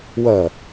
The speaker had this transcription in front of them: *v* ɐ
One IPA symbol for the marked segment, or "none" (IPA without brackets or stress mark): w